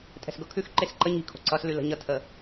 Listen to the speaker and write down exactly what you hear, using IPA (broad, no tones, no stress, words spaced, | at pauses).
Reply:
tʼɛ̤sɡɤkʰʉxǃes ǃə ɲi̤ kʰo̤ǀʌslʉ lə̤ɲʌtʰə